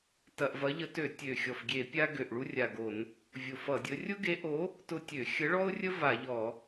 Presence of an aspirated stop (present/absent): absent